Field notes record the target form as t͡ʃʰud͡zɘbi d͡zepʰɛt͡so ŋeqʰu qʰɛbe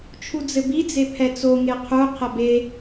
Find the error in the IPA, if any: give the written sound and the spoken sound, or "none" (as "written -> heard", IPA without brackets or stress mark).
none